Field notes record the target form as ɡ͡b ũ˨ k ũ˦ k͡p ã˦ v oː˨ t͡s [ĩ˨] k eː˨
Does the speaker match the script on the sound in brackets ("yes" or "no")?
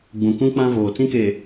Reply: no